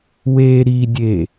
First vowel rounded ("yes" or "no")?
no